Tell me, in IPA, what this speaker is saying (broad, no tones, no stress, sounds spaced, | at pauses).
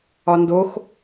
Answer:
ɒ n d o x